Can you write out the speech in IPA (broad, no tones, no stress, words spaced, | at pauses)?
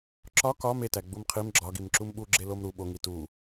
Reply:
ǁɒ kɒ metæ ɡ͡bumqʰim ɡ͡ǁɒɡim ǁumɓu ɡ͡ǁelomɾu ɓoŋi tu